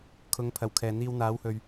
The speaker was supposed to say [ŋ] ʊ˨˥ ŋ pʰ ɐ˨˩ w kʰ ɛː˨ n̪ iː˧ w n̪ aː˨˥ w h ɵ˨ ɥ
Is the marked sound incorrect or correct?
incorrect: kʰ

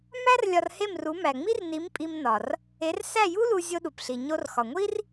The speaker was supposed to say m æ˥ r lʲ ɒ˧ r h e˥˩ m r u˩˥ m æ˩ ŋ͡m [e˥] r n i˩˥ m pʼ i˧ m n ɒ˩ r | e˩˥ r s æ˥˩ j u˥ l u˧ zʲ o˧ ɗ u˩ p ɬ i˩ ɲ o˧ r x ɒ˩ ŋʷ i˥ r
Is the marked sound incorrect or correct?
incorrect: i˥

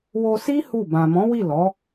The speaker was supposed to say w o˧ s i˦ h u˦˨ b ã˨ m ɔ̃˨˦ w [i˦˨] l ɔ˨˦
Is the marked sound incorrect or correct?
correct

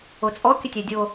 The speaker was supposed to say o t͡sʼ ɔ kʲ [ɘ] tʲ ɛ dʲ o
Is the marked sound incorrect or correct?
correct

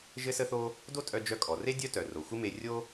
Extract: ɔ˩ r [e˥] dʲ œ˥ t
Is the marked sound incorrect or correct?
correct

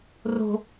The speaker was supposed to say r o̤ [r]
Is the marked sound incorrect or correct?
incorrect: none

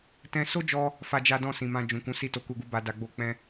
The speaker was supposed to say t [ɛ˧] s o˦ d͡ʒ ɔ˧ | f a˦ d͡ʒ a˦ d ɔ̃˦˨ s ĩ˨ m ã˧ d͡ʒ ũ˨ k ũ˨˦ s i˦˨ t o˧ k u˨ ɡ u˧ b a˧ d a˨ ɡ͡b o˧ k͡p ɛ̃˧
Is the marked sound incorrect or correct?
incorrect: ɛ̃˧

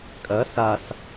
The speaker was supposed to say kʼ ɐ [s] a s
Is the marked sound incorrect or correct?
correct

